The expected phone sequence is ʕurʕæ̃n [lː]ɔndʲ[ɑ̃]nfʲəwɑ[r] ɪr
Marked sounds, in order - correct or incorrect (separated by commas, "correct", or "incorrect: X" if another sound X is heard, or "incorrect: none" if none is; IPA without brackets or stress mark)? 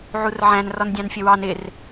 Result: incorrect: r, correct, incorrect: n